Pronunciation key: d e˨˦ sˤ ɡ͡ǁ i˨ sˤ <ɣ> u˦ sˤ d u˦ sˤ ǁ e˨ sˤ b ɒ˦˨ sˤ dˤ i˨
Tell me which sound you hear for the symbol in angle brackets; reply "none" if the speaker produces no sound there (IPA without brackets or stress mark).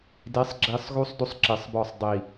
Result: ɣ